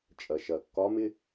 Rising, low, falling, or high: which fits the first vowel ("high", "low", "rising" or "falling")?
low